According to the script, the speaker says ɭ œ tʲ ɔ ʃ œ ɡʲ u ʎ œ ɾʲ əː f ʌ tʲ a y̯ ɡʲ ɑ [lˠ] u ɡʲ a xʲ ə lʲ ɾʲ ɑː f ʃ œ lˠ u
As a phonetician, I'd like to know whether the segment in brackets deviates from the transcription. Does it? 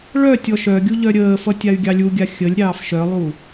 yes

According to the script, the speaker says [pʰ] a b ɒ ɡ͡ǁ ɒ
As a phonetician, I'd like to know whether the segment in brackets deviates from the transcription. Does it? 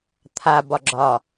yes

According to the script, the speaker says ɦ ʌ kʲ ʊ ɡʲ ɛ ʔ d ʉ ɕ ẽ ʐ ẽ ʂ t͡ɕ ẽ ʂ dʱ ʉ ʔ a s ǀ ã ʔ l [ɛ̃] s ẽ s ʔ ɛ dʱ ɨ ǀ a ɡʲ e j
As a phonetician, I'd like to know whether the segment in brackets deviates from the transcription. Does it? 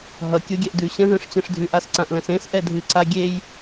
no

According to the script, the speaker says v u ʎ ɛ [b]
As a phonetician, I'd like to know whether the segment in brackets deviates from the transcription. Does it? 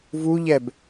no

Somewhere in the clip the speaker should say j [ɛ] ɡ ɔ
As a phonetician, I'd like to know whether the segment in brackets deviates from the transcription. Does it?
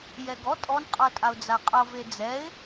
no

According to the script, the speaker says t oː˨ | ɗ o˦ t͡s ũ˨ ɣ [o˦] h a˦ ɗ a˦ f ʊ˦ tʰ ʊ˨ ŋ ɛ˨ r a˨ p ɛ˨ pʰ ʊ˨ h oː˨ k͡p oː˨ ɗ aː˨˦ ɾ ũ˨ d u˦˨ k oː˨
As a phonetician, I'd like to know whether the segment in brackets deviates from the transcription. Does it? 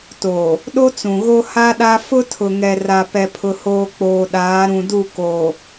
no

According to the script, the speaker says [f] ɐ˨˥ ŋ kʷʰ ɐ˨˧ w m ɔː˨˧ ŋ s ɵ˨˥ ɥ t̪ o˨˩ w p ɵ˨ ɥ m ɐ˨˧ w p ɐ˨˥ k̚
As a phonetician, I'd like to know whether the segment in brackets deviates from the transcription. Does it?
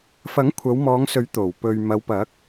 no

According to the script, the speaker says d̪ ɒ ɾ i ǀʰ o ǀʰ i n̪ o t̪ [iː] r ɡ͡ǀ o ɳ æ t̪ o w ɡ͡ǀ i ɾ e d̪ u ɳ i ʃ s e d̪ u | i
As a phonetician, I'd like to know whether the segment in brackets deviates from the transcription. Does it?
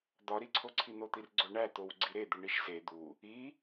yes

